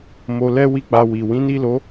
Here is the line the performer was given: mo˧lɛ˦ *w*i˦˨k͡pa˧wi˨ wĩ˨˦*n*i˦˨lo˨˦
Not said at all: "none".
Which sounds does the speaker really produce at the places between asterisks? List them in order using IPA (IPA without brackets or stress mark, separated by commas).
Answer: w, n